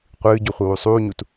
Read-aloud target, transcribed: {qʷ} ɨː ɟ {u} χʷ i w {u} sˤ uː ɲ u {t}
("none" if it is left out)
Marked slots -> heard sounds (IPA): qʷ, u, u, t

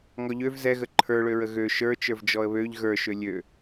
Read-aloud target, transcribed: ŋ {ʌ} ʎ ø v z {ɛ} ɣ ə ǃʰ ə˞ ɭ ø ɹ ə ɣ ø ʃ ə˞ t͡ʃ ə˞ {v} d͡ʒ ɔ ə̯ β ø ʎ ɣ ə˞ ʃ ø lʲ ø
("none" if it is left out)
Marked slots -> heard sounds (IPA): ɔ, ɛ, v

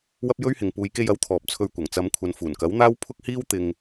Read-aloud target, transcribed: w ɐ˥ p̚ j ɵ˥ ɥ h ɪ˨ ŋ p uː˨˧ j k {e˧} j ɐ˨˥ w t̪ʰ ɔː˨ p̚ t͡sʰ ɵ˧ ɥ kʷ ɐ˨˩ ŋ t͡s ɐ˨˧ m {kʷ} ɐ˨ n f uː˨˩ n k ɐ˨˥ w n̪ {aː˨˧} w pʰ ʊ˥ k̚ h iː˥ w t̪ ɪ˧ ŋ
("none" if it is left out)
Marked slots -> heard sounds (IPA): e˧, kʷʰ, aː˥

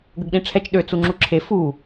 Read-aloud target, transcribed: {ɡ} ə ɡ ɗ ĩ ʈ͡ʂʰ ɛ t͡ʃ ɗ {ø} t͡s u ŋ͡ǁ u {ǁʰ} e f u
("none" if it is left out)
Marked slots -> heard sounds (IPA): ɡ, ø, ǁʰ

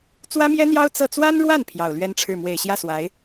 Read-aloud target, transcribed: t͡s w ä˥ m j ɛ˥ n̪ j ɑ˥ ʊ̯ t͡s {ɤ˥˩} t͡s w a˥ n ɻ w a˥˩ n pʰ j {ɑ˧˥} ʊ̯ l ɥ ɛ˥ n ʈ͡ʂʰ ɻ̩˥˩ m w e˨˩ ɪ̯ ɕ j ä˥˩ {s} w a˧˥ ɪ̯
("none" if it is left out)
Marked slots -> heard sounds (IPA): ɤ˥˩, ɑ˨˩, s

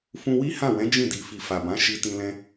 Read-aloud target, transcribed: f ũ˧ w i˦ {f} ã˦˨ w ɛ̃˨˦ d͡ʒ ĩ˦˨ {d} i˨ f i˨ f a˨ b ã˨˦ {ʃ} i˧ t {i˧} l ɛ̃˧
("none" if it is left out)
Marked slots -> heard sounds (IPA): h, d, ʃ, ĩ˧

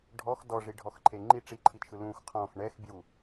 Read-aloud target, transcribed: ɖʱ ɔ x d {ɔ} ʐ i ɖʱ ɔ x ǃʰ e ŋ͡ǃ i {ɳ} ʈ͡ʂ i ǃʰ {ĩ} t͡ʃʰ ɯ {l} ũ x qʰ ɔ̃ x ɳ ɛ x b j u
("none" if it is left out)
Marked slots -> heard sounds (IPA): ɔ, none, i, l

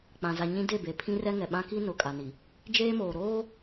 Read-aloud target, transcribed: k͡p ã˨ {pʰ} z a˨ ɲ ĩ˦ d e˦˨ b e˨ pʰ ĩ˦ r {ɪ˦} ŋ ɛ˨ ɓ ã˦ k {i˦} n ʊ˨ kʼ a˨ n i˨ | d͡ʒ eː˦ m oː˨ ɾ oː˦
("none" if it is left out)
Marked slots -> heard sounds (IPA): none, ɛ˦, i˦

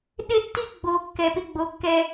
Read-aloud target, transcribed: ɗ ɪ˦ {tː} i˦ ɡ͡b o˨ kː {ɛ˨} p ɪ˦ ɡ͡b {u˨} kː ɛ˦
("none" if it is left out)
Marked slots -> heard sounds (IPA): tː, ɛ˨, o˨

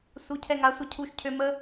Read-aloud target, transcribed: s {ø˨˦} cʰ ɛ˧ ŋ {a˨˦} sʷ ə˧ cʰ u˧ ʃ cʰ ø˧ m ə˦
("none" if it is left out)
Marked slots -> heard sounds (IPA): u˨˦, a˨˦

